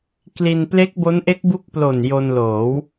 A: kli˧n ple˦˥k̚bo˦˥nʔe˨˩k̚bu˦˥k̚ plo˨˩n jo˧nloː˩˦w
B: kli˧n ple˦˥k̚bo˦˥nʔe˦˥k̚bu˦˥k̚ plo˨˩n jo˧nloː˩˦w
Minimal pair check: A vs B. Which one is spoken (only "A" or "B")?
B